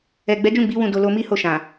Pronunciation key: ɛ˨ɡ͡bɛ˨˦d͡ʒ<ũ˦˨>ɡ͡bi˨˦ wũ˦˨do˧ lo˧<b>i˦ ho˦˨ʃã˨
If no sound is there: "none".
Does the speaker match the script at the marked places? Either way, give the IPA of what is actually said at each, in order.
ũ˦˨, m

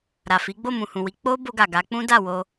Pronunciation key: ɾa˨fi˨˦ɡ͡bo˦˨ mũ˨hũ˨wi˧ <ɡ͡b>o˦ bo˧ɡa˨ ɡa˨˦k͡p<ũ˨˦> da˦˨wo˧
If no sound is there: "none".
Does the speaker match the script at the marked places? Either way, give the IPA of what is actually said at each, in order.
k͡p, ũ˦

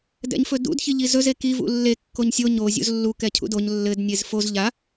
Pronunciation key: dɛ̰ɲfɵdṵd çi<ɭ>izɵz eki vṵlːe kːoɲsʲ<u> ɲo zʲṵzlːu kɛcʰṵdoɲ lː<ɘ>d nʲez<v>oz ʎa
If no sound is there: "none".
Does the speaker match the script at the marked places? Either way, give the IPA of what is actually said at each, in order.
ʎ, o, ɘ, f

